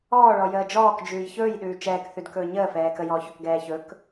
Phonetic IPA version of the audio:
ɔː ɭ ɔ j əː d͡ʒ ɔː k d͡ʒ ʉː j ç ɵː j ɗ ʉː t͡ʃ ɛː k θ ʉ d k ɵː ɲ əː f ɛː k ə j ɔː ç ɵ k ɡ ɛː ç ɵ k

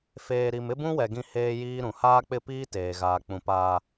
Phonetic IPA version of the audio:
f eː˨ ɾ i˨ m ɪ˦ b ũ˦ w ɛ˨ ɡ ĩ˦ h eː˦ j iː˦ ɾ ũ˨ h aː˦ k͡p ɪ˦˨ p iː˦ t eː˨ ɣ aː˨ k͡p ũ˨ p aː˨

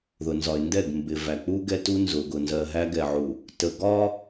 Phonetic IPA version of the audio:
ð ʊ˨ n z ɒ˨ ɪ̯ n d ɛ˦˨ ɡ m b ɪ˨ v æ˨ k͡p u˦ ɡ ɛ˦ t u˦ n z ʊ˨ ɡ ʊ˨ n z ɜ˨ ɦ æ˦ ɡ ɛ˨ ʕ u˨ | t ə˨ ɡ ɒ˦

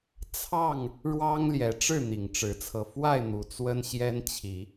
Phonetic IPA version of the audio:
t͡sʰ ɑ˥˨ ŋ | ɻ w ɑ˦ ŋ l j ɛ˨˦ ʈ͡ʂ ɻ̩˥˨ n̪ i˨˩ ŋ ʈ͡ʂ ɻ̩˨˦ t͡sʰ ɤ˧ f w a˥˨ ɪ̯ n̪ u˨˩ t͡s w ə˦ n ɕ j ɛ˦ n t͡ɕʰ i˨˦

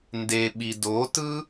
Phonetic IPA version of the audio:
n d e ɓ i d o t ɯ

